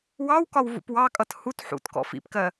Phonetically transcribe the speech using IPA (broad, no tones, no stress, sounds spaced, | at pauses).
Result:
w ɑ w k ɒ w v ṵ p w ɑ kʼ ʌ t h u t ħ ṵ t k ɔ̰ f ḭ p k ɜ